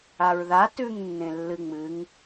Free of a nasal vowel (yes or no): no